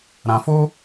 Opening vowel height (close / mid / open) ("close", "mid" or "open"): open